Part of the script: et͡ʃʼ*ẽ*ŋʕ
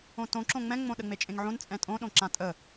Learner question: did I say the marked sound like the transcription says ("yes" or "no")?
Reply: yes